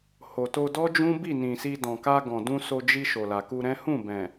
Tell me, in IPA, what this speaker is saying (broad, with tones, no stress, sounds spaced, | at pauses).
h o˨ t o˧ d ɔ˦ d͡ʒ ũ˦ b i˦˨ n ĩ˨ s i˧ d ɔ̃˨ k a˧ ɡ ɔ̃˨ d ũ˧ s o˧ d͡ʒ i˧ ʃ o˨ l a˨ k u˧ ɾ ɛ̃˦ h ũ˦˨ b ɛ̃˨